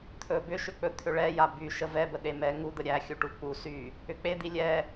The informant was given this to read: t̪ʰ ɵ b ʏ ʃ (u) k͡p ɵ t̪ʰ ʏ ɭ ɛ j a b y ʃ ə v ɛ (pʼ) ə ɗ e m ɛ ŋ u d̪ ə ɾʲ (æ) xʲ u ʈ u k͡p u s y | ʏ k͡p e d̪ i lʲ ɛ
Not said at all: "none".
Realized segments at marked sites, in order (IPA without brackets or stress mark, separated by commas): ʏ, b, æ